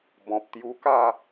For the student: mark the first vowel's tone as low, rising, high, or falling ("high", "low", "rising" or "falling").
low